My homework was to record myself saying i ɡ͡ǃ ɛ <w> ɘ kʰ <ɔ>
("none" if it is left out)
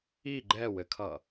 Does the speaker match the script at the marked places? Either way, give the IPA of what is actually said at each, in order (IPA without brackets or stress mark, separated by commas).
w, ʌ